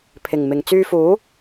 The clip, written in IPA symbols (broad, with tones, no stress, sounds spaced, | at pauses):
pʰ ɪ˨˩ ŋ m ɪ˨˩ ŋ t͡s yː˧ f uː˨˥